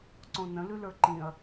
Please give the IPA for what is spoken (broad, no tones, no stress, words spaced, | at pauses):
ǀõnə̃ lʉlə˞ǃĩɐ̯